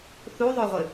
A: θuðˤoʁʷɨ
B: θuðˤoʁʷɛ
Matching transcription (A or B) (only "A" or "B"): A